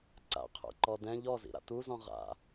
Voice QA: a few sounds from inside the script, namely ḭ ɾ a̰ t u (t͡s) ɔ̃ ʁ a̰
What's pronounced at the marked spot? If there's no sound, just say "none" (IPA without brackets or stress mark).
z